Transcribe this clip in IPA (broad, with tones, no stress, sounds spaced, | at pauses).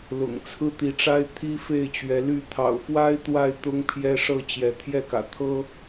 l ʊ̰˨˩ ŋ t͡sʰ ɹ̩˦ t̪ i˨˦ ʈ͡ʂ a˦ ɪ̯ t̪ʰ i˦ f e˥˨ ɪ̯ t͡ɕ ɥ ɛ˨˦ l y˥˨ t̪ʰ ɑ̰˨˩ ʊ̯ f w a˦ ɪ̯ t̪ w a˥˨ ɪ̯ t̪ ʊ˦ ŋ pʰ j ɛ˦ ʂ ɤ˥˨ t͡ɕ j ɛ˨˦ t̪ʰ j ɛ˥˨ k ä̰˨˩ t̪ʰ ɤ˦